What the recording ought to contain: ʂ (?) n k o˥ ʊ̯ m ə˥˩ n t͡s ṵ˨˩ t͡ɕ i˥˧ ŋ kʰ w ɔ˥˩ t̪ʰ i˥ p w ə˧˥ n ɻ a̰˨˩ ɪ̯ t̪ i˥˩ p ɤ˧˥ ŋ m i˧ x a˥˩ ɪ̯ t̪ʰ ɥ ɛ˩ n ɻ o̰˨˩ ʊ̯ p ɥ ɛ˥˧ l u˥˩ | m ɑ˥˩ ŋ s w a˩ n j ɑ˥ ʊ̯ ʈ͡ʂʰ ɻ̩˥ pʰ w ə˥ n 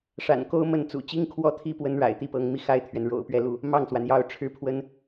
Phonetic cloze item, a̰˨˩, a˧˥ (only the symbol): a̰˨˩